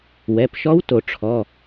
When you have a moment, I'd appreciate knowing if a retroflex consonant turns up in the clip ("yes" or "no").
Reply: yes